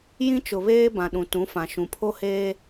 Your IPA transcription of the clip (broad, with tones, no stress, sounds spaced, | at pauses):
j ĩ˦ t͡ʃ ʊ˨ β eː˦ b ã˨ ɗ ũ˨ t ũ˨˦ f ã˨ ʃ ũ˨ pʰ o˦ h eː˦